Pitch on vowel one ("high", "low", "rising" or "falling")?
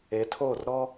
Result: rising